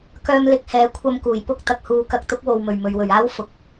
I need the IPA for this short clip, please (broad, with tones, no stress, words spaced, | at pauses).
kœː˧mlɪ˨˥k̚ hɛː˨˥ kʷʰɐ˧mkuː˨˩j pʊ˥k̚ t̪ɐ˨k̚huː˧ kɐ˨˥k̚t̪ʊ˨˥k̚wo˨wmɵ˨˩ɥ mɵ˨ɥwɵ˨˩ɥaː˥w fʊ˨k̚